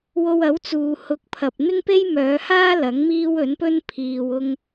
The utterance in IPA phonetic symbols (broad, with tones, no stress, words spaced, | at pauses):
wo˧wɐ˨˥wt͡suː˨ hʊ˨˥k̚pʰɐ˨p̚ n̪ɪ˥ŋpe˥jmœː˨˧haː˥ lɐ˨˥ŋmiː˥wɵ˨˥npɵ˥n pʰiː˨wʊ˧ŋ